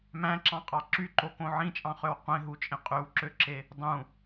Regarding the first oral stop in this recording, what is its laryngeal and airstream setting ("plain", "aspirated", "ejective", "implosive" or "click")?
click